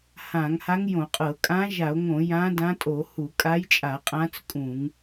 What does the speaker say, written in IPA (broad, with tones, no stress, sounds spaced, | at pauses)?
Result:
h ã˧˩˧ ŋ h a˧˥ ŋ j õ˧˩˧ qʼ ɤ˧˩˧ kʼ ã˧˥ ʒ a˧˩˧ o̯ ŋ õ˧˩˧ j ã˧˥ d ã˧˥ tʼ o˧˩˧ h u˧˩˧ kʼ a˧˥ j t͡ʃʼ a˧˩˧ qʼ ã˧˥ t͡s kʼ ũ˧˩˧ ŋ